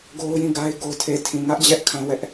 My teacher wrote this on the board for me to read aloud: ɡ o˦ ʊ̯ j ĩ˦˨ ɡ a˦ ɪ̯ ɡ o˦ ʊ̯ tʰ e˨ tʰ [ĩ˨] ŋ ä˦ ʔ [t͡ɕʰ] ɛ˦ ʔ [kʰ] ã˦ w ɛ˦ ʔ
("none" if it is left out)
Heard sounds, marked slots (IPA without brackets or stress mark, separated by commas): ĩ˨, d͡ʑ, kʰ